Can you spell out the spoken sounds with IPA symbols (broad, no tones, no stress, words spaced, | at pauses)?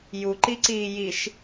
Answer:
juǃiǀiː jiʃ